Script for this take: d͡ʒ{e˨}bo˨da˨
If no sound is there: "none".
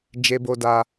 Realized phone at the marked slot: e˨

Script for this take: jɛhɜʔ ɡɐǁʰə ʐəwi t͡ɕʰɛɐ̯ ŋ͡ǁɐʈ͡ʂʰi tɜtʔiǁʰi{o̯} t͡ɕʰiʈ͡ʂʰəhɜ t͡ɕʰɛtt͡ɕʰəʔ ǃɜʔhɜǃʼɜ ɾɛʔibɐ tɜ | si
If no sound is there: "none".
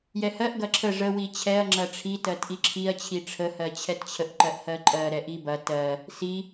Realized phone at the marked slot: ɐ̯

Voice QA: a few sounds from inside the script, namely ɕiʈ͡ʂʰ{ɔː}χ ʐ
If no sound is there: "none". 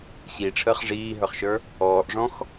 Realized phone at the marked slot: əː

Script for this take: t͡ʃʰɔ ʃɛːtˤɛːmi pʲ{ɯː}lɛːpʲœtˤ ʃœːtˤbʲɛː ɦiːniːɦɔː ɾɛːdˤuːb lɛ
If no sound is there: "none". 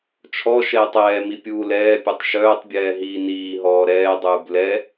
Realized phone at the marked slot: uː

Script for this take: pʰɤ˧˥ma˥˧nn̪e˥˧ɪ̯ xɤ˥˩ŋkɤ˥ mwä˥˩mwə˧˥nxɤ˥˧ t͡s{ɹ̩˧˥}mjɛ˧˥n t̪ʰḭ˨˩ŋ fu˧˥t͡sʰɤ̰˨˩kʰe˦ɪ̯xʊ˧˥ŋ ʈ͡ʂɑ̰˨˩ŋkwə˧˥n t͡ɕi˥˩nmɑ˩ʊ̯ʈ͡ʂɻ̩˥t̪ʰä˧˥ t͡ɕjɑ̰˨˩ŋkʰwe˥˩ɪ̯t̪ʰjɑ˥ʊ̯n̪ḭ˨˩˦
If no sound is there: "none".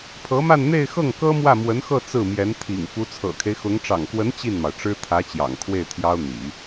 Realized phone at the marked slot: ɹ̩˥˩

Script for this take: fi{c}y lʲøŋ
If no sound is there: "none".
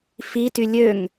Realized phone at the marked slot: t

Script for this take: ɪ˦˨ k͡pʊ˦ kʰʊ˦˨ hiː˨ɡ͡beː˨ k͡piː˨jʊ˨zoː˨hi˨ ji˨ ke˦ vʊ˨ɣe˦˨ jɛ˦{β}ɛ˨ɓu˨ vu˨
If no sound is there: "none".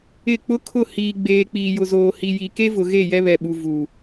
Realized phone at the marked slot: β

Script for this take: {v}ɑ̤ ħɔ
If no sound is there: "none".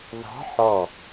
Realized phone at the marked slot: ð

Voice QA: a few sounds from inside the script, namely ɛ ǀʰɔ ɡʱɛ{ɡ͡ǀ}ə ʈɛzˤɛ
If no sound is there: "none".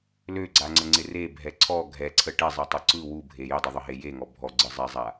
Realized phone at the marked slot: ǀʰ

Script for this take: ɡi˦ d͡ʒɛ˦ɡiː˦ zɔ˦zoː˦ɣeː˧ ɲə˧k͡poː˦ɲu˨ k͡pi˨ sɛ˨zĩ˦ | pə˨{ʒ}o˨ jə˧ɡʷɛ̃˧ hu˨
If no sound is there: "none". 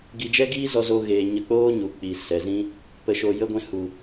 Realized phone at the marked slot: ʃ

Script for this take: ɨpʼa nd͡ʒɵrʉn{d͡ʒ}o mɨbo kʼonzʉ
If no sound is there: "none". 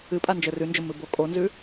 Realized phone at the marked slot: d͡ʒ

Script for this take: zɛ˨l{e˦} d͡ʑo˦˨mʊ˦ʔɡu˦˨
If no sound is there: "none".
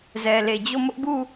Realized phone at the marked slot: e˨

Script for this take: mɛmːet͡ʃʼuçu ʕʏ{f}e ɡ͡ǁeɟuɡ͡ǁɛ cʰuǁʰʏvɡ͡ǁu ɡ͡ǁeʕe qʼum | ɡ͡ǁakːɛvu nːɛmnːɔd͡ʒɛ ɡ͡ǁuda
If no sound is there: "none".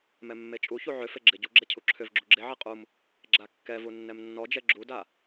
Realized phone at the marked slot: f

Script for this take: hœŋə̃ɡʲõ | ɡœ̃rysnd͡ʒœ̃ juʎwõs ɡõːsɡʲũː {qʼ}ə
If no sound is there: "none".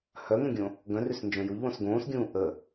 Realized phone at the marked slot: ʔ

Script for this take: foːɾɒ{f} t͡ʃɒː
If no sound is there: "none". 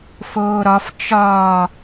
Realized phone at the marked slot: f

